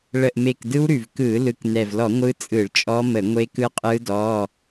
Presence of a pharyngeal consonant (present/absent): absent